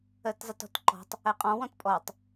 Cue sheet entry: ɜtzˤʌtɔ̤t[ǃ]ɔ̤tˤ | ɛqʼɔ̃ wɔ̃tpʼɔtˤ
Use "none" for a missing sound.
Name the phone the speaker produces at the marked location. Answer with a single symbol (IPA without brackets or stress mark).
ǃ